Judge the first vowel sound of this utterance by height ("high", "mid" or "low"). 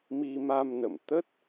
high